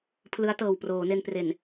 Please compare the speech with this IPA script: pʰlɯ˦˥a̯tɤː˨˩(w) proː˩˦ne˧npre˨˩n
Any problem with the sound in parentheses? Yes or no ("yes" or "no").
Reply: no